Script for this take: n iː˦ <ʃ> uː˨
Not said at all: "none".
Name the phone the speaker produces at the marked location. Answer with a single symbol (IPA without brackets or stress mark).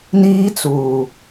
t͡s